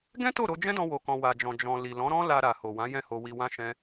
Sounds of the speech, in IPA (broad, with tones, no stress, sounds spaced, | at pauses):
ɡ ɛ̃˦ t o˦˨ ɾ o˧ d͡ʒ ɛ̃˦ d ɔ̃˧ w o˨ k ɔ̃˨ w a˨ d͡ʒ ɔ̃˨ d͡ʒ ɔ̃˨ l i˨ l ɔ̃˨˦ ɾ ɔ̃˦ l a˧ ɾ a˨ h o˨ w ã˨˦ j ɛ̃˦˨ h o˧ w i˧ w ã˦ ʃ ɛ̃˦